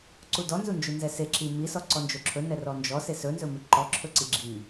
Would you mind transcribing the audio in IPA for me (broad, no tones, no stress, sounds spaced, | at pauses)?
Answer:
ǀ u d ɔ n z u n d͡ʒ u n z ɛ s e ǁ i m i s ɔ ǀ ɔ n d͡ʒ o ǁʰ ɵ n ɛ r ɔ n d͡ʒ ɔ s e s ɵ n z ɵ m i ǃ ɔ ǁʰ ɵ ǀ i ɡ͡ǁ i